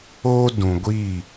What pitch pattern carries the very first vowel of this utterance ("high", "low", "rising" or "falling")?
high